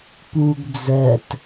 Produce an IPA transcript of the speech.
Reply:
p u ɡ d͡z ɜ t

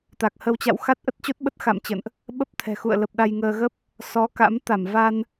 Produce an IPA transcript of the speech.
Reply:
t̪ a˨˩ k̚ h ə˧ w t͡ɕ a̰˧˨ w x a˦˥ t̚ ʔ ə˦˥ t̚ t͡ɕ o˦˥ t̚ ɓ ə˦˥ t̚ x a̰˧˨ m t͡ɕ ə̰˧˨ n ʔ | ɓ ə˦˥ p̚ t̪ʰ ɛ̤˨˩ x ṵ˧˨ ə̯ l ə˨˩ p̚ ɗ a˧ j ŋ əː˧ ɣ ə˦˥ p̚ | s ɔ˨˦ k a̰˧˥ m t̪ a˧˩ m v a˧ n

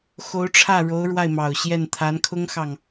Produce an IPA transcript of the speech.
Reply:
x o˧˥ ʊ̯ ʈ͡ʂʰ ä˥˩ ɻ o˧˥ ʊ̯ ɻ w a˥˩ ɪ̯ m ɑ˨˩ ʊ̯ ɕ j ɛ˥˩ n t̪ʰ a˧˥ n kʰ ʊ˥ ŋ x ɑ˨ ŋ

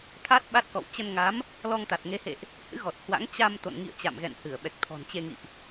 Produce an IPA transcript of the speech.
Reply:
t̪ʰ a˦˥ t̚ ɓ a˦˥ t̚ k ɔ̰˧˨ w t͡ɕ ə˧ n ŋ a˨˦ m | l ɔ˧ ŋ t̪ a˨˩ t̚ ŋ e˨˦ h ḛ˧˨ ʔ | h ɨ̰˧˥ ɣ ɔ˨˩ t̚ h w a̰˧˥ ŋ t͡ɕ a˧ m t̪ o̰˧˨ n ŋ ḭ˧˨ ə̯ t͡ɕ a̰˧˨ m ɣ ɛ̰˧˨ n h ɨ˧˩ ə̯ ɓ ɛ˨˩ k̚ t̪ʰ ɔ̤˨˩ n t͡ɕ e˧ ŋ ḭ˧˨ ʔ

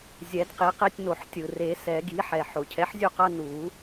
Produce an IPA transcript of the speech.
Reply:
zʲ ɛ˨˩˦ d q i˩˥ q e˦ tʲ n o˨˩˦ ħ tʲ ɯ˩ r e˨˩˦ s ɛ˨˩˦ ɡ i˩˥ ħ ɛ˩ ħ o˩ cʰ ɛ˩˥ ħ zʲ u˥˩ q ʌ˦ n u˨˩˦

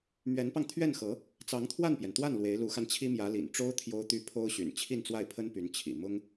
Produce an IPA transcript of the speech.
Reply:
m ɥ ɛ˧˥ n p ɑ˧ ŋ t̪ʰ ɥ ɛ˥˩ n x ɤ˧˥ | t͡s ɑ˧˥ ŋ t̪ʰ w a˥˩ n p j ɛ˩ n t̪ w a˥˩ n l w e˧˥ ɪ̯ l u˧˥ x a˧ n t͡ɕʰ i˥ m j ä˧˥ l ḭ˨˩ n ʈ͡ʂ o˥ ʊ̯ t̪ʰ j o˥ ʊ̯ t̪ y˥ pʰ o˥ ʊ̯ ɕ y̰˨˩ n t͡ɕʰ i˥˧ n t͡s w a˥˩ ɪ̯ pʰ ə˥ n p y˧˥ n t͡ɕʰ ḭ˨˩ m ʊ˥ ŋ

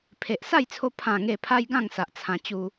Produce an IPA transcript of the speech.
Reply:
pʰ e˨ ʔ s a˥˧ j t͡sʰ o˧ pʰ ã˨˩ ŋ e˨˩ pʰ a˧ j ɡ ã˥˧ ŋ s a˨ ʔ t͡sʰ ã˧ t͡ɕ u˦

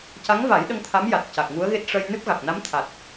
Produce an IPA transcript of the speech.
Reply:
c a˧˥ ŋ v a˨˩˦ j ɗ ə˧ ŋ t̪ʰ a˧˥ m j a˨˩ t̚ c a˨˩ k̚ ŋ u˧˥ ə̯ ɣ e˦˥ t̚ ʂ ə˧ j n ɨ˦˥ p̚ ɣ a˨˩ k̚ n a˧˥ m t̪ʰ a˨˩ t̚

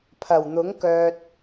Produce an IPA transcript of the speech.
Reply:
pʰ ɐ˨˩ w n̪ ʊ˨˥ ŋ k œː˨ t̚

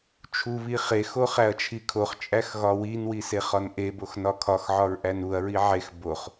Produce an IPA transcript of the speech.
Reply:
t͡ʃʰ u β i χ e x o χ æ ɐ̯ t͡ʃʰ i kʰ o χ t͡ʃʼ æ x ɣ ɒ w i n w i s e χ ɒ n ʔ e b o x n ɒ kʰ ɒ x ʕ ɒ ɹ ʔ æ n u ɐ̯ ɹ i ʕ e x b o χ

